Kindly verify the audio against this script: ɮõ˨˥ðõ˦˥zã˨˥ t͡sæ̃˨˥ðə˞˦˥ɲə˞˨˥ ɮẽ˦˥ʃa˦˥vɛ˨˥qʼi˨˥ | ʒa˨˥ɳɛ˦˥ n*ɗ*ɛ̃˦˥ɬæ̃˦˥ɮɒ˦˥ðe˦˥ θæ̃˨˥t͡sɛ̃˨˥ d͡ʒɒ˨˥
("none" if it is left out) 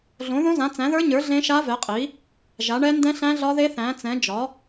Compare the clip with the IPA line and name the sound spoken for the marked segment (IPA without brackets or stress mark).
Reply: d